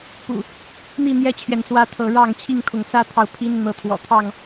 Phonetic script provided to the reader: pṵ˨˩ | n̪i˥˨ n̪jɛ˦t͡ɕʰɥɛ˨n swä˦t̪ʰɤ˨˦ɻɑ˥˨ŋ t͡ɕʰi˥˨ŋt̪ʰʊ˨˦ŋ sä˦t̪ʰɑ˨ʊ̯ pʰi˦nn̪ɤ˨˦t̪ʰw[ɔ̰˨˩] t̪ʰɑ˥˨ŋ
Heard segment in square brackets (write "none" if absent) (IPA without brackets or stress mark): ɔ̰˨˩